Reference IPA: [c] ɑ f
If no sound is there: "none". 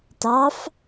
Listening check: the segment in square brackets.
t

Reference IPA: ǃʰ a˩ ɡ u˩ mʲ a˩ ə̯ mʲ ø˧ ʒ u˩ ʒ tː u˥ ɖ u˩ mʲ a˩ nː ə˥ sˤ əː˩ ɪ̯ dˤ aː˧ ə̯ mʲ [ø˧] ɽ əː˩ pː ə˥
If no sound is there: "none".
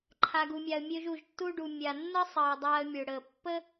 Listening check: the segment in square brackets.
ø˩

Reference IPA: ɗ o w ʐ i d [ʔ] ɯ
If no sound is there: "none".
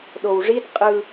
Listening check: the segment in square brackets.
qʼ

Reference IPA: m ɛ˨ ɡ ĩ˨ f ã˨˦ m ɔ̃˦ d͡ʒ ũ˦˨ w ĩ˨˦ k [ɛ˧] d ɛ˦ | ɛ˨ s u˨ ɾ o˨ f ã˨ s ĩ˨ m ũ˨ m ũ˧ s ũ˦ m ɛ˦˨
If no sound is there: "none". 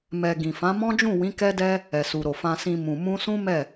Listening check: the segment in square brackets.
ɛ˦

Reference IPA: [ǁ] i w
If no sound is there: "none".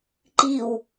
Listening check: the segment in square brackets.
ǃ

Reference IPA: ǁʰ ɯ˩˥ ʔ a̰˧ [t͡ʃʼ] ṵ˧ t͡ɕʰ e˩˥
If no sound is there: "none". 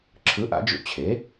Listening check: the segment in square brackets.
d͡ʒ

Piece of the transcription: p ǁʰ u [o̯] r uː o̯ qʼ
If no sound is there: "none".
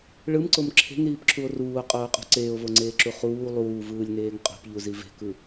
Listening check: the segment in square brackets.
o̯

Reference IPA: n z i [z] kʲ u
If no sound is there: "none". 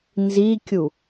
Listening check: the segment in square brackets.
none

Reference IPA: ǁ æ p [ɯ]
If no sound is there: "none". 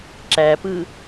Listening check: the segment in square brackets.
ɯ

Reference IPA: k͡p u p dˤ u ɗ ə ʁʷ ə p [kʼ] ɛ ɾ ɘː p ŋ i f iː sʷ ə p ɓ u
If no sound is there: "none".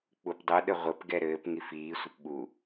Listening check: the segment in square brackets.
ɡ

